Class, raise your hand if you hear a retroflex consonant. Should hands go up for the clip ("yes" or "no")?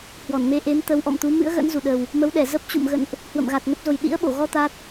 no